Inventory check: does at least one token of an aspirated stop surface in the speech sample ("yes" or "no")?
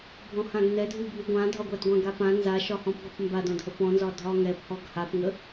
no